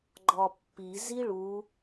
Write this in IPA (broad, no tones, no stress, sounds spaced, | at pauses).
ɡ͡ǃ ɒ pː i z i ɭ u